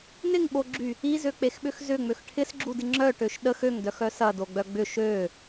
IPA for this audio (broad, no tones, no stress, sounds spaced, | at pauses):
n ɪ ŋ ɓ o ɡ͡ǁ y | i z ø k͡p e x ɓ ʏ x z ʏ ŋ͡m ø x ʈʰ ɪ s ɡ͡ǁ u d ɪ ŋ͡ǁ œ ʈ ø ʃ ɗ ə x ø ŋ d œ x œ s ɐ d o ɡ͡b œ ɡ͡b ʏ ʃ ø